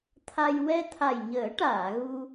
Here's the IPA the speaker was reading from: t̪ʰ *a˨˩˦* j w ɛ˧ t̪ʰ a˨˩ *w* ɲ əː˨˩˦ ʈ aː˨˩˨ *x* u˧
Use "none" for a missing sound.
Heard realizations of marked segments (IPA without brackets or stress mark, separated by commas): a˧, j, ɣ